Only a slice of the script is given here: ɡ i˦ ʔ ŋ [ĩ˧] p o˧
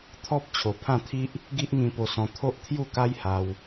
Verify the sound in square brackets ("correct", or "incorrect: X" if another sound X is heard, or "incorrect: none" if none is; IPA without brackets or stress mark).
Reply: correct